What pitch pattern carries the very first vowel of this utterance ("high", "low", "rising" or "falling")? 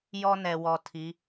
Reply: high